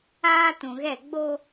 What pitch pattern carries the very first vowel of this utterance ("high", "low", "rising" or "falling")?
high